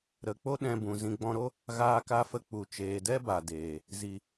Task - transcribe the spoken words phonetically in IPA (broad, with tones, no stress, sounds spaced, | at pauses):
ɾ ə˨ k͡p o˦ ɗ ɛ̃˧ b ũ˨ z ĩ˧ ɡ͡b ɔ̃˧ ɾ o˦ | ɣ aː˧ k a˧ f ə˧ k͡p u˨ t͡ʃ eː˨ d ɛ˦ b a˨ d eː˨ | z i˨